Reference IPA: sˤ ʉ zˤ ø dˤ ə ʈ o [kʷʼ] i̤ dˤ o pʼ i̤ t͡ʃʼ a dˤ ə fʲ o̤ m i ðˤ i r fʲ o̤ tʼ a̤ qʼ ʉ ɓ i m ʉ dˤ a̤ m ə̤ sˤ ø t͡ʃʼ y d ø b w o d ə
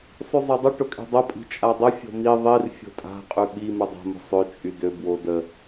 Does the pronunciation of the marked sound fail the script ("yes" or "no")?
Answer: yes